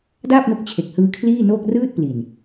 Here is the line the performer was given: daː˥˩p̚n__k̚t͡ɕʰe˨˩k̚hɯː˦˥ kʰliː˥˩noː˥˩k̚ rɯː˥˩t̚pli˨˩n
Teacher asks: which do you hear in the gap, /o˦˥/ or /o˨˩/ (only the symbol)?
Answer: o˦˥